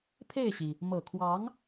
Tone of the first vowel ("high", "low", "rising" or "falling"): falling